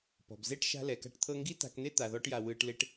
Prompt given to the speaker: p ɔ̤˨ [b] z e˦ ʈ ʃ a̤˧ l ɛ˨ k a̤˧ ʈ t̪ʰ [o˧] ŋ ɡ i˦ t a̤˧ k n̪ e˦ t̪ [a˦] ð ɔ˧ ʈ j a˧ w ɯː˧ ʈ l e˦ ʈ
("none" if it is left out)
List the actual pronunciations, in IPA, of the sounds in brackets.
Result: b, ɤ˧, a˨

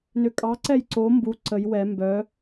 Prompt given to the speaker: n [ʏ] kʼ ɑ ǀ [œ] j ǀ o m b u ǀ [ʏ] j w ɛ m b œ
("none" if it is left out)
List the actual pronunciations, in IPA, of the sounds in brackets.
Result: ʏ, ɛ, ə

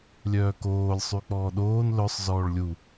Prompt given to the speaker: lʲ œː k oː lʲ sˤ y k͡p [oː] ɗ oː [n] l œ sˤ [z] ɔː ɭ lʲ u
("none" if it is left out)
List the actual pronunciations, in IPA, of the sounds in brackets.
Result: ɔː, n, z

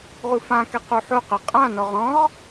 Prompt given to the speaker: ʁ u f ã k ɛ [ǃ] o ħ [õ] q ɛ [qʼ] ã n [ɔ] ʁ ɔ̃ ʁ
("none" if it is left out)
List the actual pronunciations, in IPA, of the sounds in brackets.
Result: q, o, qʼ, ɔ

